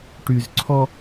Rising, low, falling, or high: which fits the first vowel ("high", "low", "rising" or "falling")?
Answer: low